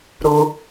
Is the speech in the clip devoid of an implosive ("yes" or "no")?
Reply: yes